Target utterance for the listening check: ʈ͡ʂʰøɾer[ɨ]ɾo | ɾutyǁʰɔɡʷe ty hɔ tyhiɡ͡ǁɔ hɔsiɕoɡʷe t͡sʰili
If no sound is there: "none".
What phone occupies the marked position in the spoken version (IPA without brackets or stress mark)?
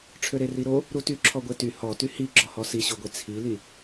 i